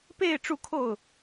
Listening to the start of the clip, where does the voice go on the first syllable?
falling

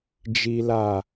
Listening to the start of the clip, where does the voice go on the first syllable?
high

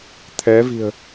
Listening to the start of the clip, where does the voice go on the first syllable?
rising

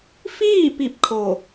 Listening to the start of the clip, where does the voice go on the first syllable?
falling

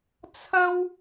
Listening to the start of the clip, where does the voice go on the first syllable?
high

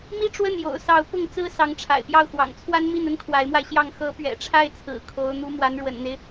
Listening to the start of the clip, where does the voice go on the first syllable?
high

